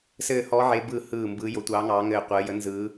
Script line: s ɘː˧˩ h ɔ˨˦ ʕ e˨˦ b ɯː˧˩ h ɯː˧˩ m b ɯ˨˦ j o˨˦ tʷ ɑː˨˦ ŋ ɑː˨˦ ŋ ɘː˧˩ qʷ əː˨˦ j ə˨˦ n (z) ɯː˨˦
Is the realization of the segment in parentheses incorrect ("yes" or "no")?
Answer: no